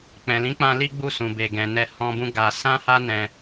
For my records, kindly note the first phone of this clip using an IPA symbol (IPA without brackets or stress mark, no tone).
k͡p